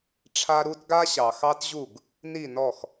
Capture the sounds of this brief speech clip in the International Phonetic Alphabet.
ʈ͡ʂʰ a˦ ɾ u˦ t ɡ a˦ ɕ ɑ˨ x ɑ˦ t ʑ u˦˨ ɡ | n i˦˨ n ɔ˦˨ x

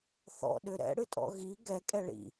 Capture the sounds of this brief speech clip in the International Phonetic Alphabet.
θ ɔ̰ ɗ ʏ ɾ ɛ̰ ɽ ɨ tʼ ɔ̰ ɣ i ɡ ɛ kʼ ɛ ɭ ḭ

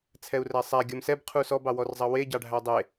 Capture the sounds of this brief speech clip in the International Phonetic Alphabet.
t͡sʰ ɛ u̯ r æ sˤ æ ɡʲ ɔ m s ɛ b qʰ u s ɔ b ɑ w ɔ r zˤ ɑ w e ɟ ɑ ɖʱ æ dˤ e

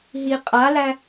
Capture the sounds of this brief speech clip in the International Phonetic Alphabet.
ɦ i qʼ a l æ

